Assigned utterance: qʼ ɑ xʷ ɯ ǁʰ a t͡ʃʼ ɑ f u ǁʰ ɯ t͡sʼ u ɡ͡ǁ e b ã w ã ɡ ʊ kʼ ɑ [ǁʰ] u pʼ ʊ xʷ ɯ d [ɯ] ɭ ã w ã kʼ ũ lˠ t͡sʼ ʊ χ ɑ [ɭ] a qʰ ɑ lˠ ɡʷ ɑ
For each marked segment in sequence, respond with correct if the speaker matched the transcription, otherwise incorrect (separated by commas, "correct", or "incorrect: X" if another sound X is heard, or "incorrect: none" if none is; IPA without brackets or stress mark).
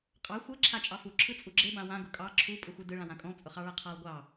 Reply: correct, correct, correct